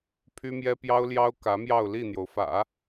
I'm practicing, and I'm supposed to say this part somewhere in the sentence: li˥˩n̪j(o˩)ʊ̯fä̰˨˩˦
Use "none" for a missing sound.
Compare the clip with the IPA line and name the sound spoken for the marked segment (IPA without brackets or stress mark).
o˩